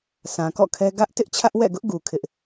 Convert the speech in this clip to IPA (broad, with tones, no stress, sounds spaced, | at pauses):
s ã˨ k ɔ̰˦˨ kʰ ɛ˦ ɡ ä˦ ʔ t ɪ˦ ʔ t͡ɕʰ ä˦ ʔ w ɛ̰˦˨ ɡ ʊ˦ ʔ ɡ u˨ kʰ ɪ˦ ʔ